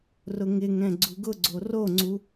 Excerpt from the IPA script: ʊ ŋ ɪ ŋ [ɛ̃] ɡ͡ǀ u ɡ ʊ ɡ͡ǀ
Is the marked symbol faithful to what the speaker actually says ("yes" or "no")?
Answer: yes